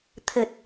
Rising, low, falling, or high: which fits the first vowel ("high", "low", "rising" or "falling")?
low